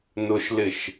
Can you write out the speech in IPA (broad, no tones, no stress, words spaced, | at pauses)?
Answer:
nʊʃlɪʃ